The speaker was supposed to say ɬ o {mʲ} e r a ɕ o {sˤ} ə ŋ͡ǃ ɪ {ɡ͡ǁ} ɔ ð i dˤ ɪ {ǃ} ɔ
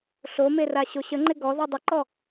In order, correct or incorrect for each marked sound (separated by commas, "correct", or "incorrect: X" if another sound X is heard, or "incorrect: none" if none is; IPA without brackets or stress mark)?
incorrect: m, incorrect: ɕ, incorrect: ɡ, correct